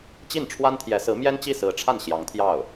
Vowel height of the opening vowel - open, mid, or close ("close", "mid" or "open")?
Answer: close